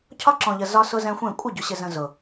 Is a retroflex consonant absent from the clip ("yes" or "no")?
yes